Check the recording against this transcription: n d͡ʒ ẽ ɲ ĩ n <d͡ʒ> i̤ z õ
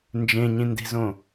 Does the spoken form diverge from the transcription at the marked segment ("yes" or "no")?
yes